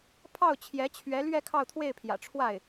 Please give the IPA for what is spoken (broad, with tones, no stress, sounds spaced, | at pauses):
pʰ ɑ˥˩ ʊ̯ t͡ɕʰ j ɛ˧˥ t͡ɕʰ ɥ ɛ˧˥ l ɥ ɛ˥˧ kʰ ɑ˥˧ ʊ̯ t̪ʰ w e˥˩ ɪ̯ pʰ j ä̰˨˩ ʈ͡ʂʰ w a˥˩ ɪ̯